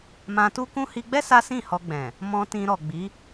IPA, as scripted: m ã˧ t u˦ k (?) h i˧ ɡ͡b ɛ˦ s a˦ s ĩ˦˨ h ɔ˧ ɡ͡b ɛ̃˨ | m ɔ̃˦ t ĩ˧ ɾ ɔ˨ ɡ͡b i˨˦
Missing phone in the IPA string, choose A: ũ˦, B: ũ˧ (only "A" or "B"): A